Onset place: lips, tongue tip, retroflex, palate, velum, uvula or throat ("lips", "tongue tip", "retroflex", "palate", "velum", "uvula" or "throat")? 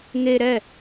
velum